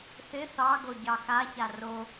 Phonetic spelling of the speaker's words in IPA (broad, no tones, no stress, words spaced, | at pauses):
θɪ θɑɡo ɟɑxaça ro